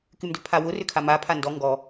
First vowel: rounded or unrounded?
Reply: rounded